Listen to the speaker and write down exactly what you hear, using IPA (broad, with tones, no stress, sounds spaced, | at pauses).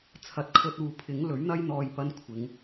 t͡sʰ ɐ˨ t̚ kʰ ɵ˧ t̚ uː˨ pʰ ɪ˨˥ ŋ l ɵ˨˥ ɥ n̪ ɐ˥ j n̪ ɔː˧ j p ɐ˥ n kʷʰ ɪ˨˧ ŋ